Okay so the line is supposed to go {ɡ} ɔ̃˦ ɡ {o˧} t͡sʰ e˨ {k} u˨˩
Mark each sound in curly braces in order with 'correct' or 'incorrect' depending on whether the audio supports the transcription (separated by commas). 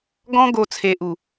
correct, correct, incorrect